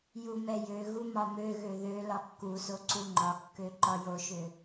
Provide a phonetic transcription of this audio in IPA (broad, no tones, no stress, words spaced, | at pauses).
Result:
jumɛjøɣu mɒmøɣø ðø lɒkːuso ǀuŋ͡ǃɒkːø ǃɒjoʃø